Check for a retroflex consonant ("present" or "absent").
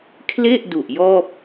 absent